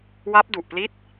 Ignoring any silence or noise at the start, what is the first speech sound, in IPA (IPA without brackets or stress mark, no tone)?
w